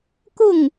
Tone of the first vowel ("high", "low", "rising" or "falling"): falling